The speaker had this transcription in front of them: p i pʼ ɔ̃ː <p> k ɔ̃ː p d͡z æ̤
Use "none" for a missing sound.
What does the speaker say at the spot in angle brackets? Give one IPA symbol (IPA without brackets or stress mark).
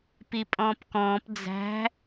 p